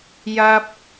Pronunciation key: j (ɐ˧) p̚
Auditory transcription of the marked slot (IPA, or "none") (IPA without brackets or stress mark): ɐ˧